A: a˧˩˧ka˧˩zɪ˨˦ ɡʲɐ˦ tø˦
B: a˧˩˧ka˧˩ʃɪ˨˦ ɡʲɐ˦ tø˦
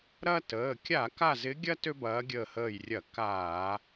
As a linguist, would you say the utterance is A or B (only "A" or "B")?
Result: A